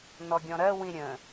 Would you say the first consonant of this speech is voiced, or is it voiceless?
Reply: voiced